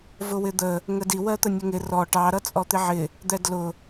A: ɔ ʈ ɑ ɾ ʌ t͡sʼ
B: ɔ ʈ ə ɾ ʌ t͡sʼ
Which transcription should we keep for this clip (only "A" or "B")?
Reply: A